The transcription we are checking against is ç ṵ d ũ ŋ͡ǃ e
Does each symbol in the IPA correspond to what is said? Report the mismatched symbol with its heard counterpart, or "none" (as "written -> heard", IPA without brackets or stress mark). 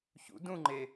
none